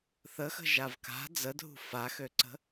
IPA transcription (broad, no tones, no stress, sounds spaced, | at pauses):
θ ə x ə̤ ʒ a v k a̤ d͡z ə dʱ ṳ f a x ø ǀ ə̤